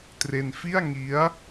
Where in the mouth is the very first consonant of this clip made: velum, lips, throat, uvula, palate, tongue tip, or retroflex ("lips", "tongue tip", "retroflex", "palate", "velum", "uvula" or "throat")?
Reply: tongue tip